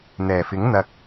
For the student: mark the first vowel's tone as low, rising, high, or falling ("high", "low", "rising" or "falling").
low